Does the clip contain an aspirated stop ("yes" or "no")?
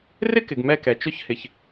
no